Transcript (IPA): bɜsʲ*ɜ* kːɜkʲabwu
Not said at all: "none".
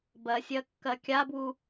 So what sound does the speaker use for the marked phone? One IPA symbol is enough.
ɜ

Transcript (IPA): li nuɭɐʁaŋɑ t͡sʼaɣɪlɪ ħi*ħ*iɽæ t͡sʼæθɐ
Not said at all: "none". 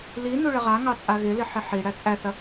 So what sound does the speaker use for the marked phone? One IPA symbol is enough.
ħ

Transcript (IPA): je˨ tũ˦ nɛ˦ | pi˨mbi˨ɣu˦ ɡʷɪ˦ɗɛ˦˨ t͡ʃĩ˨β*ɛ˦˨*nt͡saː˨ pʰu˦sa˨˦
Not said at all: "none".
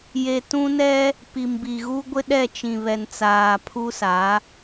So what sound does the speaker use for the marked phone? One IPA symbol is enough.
ɛ˨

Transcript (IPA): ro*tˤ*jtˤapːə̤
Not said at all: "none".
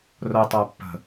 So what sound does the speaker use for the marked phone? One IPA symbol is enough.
none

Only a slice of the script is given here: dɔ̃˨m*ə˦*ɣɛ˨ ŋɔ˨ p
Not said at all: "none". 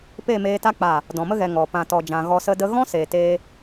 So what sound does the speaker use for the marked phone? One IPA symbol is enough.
ə˦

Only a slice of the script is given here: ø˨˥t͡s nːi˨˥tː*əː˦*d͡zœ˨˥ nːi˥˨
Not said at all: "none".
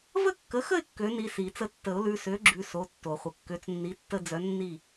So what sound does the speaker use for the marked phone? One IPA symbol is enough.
ə˦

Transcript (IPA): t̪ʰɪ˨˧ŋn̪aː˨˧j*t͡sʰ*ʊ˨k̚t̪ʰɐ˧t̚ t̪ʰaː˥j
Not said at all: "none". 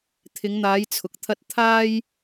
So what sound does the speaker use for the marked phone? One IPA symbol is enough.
t͡sʰ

